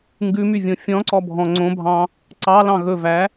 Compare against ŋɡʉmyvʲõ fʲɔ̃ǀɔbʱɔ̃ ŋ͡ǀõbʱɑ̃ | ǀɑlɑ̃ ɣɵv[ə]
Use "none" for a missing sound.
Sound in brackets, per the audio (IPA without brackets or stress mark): æ